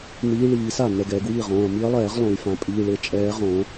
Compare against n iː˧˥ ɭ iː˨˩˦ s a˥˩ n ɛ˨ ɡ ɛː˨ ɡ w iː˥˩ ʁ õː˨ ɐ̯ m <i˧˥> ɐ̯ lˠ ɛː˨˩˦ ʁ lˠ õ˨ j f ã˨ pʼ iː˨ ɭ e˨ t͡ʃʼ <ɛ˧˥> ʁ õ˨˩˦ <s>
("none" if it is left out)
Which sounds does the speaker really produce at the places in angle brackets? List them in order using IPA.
i˧˥, ɛː˧˥, none

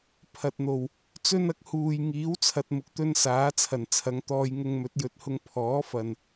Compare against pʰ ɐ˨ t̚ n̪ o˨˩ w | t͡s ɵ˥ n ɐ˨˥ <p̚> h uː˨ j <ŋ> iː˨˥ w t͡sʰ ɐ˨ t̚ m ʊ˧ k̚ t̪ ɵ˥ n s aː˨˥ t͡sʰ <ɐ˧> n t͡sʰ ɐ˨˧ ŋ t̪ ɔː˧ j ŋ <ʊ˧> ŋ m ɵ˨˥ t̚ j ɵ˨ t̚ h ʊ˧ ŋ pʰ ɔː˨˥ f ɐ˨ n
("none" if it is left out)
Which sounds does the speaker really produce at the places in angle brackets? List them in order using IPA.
k̚, ŋ, ɐ˨˩, ʊ˧

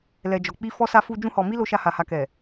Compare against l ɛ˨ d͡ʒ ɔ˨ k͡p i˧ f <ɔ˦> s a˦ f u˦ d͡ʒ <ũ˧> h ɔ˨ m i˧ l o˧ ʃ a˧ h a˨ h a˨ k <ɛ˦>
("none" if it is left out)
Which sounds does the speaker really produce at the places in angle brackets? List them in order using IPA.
ɔ˦, ũ˧, ɛ˨

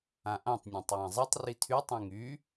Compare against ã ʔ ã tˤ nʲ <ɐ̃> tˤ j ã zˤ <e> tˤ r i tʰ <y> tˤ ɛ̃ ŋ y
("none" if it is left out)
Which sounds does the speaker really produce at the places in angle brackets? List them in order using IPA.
ã, i, y

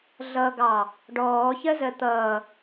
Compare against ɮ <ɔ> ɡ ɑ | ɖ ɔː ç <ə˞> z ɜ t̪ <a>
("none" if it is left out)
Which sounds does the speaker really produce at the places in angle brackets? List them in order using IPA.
ʌ, ɜ, ʌ

